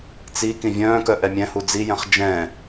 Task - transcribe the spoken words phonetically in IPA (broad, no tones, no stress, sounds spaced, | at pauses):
t͡s i k ĩ vʲ œ̃ː k œ ʔ ɛ mʲ ɛ̃ h u d͡z i j ɛ̃ χ d͡ʒ ɛ̃